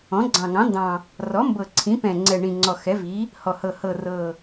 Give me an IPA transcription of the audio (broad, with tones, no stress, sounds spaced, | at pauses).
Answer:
ɔ̃˩˥ ɡ͡ǀ ɑ̃˨˩ ŋ ɑ̃˩˥ n d ɑ̃˨˩ | r ɔ˩˥ m b ɤ˨˩ ǀʰ ĩ˩˥ p ɛ̃˨˩ ŋ͡ǀ ɛ˨˩ ɳ ĩ˨˩ ŋ͡ǀ ɔ˨˩ x ɛ˩˥ v i˩˥ | h ɔ˨˩ h ɤ˨˩ h ɤ˨˩ r ɤ˨˩